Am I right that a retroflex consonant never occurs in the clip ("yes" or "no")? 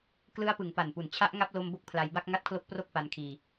yes